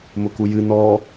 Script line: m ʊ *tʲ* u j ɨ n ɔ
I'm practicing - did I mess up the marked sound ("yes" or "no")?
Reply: yes